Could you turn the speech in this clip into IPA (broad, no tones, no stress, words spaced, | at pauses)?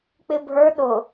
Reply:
k͡pɪbʱə˞ ɗʊ